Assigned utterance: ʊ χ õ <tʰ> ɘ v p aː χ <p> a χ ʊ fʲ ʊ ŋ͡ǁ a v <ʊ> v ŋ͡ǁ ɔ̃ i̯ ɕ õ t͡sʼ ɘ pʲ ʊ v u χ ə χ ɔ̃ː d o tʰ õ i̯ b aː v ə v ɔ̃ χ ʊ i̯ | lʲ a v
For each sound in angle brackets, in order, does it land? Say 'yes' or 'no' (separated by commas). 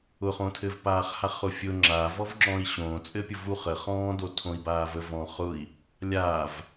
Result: yes, no, no